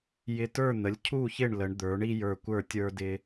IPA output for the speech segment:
jɪ˧tə˞˥˩n̪ə˩˥lʲ cʰu˥˩çɪ˥˩ɳ lə˩˥ɳd̪ə˞˩˥ɳi˥ jə˞˧kʷə˞˥˩ tʲə˞˥dɪ˥

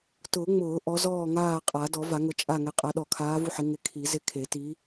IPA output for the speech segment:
tʊː˨˩˦ ŋ͡mʊː˨˩˦ ʔɔ˨˦zɔː˦˨ŋaː˦˨ qʼa˨˩˦ dɔ˨˩˦va˨˩˦ŋʊ˨˦t͡ʃʼa˦˨ ŋɛ˨˦qʼa˨˦ ɗɔ˨˩˦kʰaː˨˦ vu˦˨ħɪ˨˦ ŋɪ˨˦kʰi˨˩˦ zɪ˦˨kʰe˨˩˦ ti˨˦

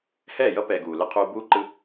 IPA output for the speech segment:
hɛː˦˨jʌ˦pɛː˨ ɡuː˨lɯ˦qʰuː˦ buː˦ǃɯ˦

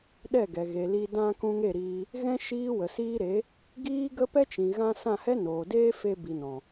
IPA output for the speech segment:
ɗɛ˦˨ɡɛ˨ɣe˨ li˧ dã˧ kũ˧ŋe˦˨ɾiː˧ | ɣɛ̃˦ ʃiː˦wə˨siː˦ ɾe˨˦ | ɡiː˦ ɡə˦pɛ˦ t͡ʃĩ˨ɣã˧ sã˦˨hɛ˦noː˨deː˦ fe˧bi˨nɔ̃˨

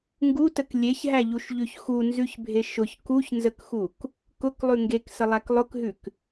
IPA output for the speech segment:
ŋɡutək lʲeçɦæʎuʃʎʉç xunzʉçbʱe ʃʊç kuçnzəkxuk | kʊklˠʉ ŋɡeksəlˠæk lˠʊkɦʉk

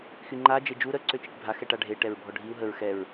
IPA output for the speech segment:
xyŋ͡ǃa d͡ʒed͡ʒu ɾə ǀøt͡ʃiʈbʱa xɛʈaɖʱe ʈɛɹbʱɔɖʱiu̯ ɦəɹ xɛɹ

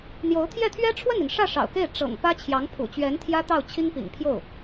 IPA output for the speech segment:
n̪jo˧˥ʊ̯ t̪ʰjɛ˥˩t̪ʰɥɛ˥ ʈ͡ʂʰwə˥˩ni˩nʂä˥˩ ʂɑ̰˨˩ʊ̯ke˥˩ɪ̯ ʈ͡ʂɤ̰˨˩ŋ pä˥ t͡ɕʰjɑ˧˥ŋpʰṵ˨˩t͡ɕɥɛ˧˥nt̪ʰjä˥ t̪ɑ˥˩ʊ̯t͡ɕʰi˥ŋ pḭ˨˩ŋpʰjo˥˩ʊ̯

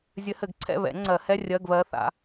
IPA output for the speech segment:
zʲɘ˧˥hɘ˨˩˦ɡ ǀʰɛ̰˦˨βɛ̰˨˩˦ŋ͡ǀɜ˨˩˦hɛ˧˥˧ rʲɜ˧˥˧ɡβɜ˧˥θa̰˩˥

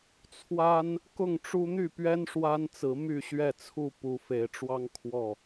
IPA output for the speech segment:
t͡sʰwa˦n | kʊ˥˨ŋʈ͡ʂu˦ n̪y˥˨pɥɛ˦n ʂwa˦nt͡sɹ̩˨˦ my˥˨ɕɥɛ˥˨t͡sʰu˥˨ pu˨˦fe˨˦ɪ̯ʈ͡ʂwɑ˦ŋ kʰwɔ˥˨

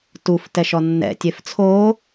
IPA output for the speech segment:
tuf tɛʃɔnːɛ̰ tʲeft͡sʰoː

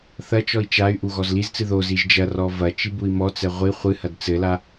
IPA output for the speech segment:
θɐt͡ʃɔi̯ t͡ʃay̯ʔu ɣɔzlizt͡sɨ ðoziʒ d͡ʒɐrɔ vɐ t͡ʃibui̯mɔt͡sɛ ʁʷi χʷɨhɐd t͡sɘla

